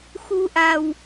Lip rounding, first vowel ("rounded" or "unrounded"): rounded